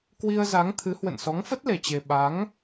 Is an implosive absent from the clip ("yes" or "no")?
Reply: no